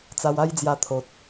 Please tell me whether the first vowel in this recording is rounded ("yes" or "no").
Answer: no